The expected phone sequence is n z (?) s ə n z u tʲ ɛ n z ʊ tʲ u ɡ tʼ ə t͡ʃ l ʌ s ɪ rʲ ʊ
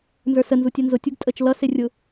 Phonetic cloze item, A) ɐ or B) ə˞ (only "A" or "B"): B